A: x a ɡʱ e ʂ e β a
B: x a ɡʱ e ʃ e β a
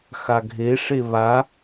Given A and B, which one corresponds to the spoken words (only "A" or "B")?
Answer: A